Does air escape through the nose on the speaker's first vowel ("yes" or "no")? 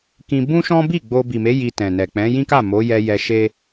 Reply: yes